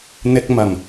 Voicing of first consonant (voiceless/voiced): voiced